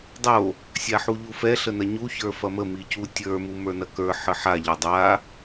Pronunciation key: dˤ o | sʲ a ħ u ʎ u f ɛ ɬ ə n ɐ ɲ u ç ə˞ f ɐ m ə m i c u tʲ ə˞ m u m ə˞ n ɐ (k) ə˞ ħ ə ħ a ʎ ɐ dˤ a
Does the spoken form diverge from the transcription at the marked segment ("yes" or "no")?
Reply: no